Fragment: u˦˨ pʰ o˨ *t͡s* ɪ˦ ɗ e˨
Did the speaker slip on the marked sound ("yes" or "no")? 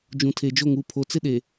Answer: no